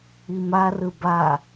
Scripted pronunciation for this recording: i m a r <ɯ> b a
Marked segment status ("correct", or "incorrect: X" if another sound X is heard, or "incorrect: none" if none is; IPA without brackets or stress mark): correct